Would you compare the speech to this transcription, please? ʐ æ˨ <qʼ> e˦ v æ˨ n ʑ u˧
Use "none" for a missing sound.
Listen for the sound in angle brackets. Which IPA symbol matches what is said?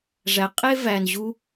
qʼ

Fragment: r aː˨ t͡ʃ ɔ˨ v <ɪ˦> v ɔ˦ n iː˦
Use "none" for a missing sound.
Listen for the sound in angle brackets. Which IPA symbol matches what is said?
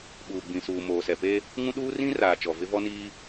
ɪ˦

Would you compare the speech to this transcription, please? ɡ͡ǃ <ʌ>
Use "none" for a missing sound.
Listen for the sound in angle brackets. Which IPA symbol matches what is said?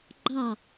ɑ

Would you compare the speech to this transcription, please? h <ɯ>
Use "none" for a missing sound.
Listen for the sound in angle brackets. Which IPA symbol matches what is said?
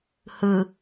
ɯ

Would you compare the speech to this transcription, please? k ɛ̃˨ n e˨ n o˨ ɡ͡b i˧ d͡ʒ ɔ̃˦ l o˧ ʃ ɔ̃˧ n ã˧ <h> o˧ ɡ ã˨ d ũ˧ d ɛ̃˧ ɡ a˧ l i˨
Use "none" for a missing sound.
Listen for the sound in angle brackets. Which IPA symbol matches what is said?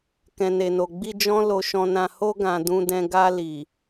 h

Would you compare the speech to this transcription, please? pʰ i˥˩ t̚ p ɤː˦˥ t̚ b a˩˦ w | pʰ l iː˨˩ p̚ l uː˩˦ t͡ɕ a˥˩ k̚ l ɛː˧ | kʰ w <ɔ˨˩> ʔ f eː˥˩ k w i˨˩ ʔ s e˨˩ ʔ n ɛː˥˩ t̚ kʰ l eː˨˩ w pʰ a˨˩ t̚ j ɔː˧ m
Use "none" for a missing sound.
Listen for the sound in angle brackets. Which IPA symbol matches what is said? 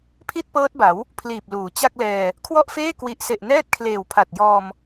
ɔ˥˩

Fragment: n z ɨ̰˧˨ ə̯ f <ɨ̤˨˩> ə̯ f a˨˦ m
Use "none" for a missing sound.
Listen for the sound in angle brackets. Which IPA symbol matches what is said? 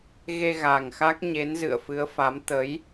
ɨ˨˦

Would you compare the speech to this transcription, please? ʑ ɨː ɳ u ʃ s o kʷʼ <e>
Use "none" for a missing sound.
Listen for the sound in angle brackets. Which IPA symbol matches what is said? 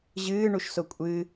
ɨ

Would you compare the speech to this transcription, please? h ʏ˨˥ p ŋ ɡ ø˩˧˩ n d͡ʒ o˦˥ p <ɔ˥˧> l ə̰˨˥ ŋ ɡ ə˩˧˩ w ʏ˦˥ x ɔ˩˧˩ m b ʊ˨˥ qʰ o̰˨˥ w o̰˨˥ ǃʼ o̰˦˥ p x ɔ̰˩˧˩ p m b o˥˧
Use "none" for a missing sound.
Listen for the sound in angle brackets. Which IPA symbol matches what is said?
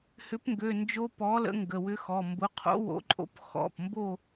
ɔ˨˥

